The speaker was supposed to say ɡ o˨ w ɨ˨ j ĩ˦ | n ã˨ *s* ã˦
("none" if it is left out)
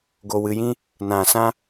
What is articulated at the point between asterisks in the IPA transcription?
s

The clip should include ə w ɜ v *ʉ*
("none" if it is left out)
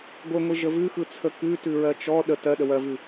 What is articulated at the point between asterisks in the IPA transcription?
ʉ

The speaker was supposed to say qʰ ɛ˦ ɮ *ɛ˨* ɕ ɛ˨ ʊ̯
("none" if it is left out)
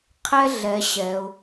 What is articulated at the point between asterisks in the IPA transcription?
ɛ˨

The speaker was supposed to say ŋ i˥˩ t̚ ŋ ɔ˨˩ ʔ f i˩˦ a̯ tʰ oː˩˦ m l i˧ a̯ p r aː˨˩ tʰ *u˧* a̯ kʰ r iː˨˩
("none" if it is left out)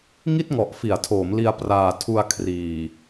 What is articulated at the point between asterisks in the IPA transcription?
u˧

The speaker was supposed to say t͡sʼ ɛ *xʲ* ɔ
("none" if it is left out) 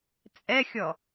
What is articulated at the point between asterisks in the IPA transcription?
xʲ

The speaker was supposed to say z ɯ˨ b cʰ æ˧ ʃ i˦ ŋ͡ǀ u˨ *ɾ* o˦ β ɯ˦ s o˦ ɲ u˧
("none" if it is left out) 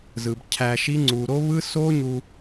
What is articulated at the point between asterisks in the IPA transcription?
ɾ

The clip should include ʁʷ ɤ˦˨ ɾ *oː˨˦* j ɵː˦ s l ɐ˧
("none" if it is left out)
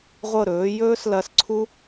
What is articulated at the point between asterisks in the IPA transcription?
ɵː˨˦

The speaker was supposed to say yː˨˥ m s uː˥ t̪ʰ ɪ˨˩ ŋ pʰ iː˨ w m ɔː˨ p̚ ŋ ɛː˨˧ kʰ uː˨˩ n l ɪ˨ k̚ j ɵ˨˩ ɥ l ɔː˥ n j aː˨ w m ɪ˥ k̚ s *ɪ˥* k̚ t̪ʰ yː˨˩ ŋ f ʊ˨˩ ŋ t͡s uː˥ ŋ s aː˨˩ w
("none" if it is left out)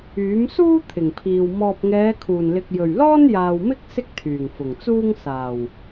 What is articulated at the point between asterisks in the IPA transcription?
ɪ˥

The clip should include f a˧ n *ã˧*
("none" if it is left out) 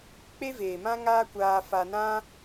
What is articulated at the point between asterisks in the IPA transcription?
ã˦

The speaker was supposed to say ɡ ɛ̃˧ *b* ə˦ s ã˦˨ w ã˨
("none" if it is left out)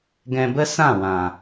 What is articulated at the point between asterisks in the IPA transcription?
b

